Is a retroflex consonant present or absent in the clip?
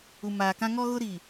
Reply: absent